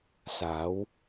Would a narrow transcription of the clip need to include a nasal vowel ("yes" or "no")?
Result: no